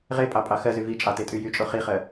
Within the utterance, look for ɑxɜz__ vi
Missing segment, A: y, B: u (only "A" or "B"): A